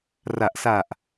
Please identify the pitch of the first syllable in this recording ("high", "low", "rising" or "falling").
low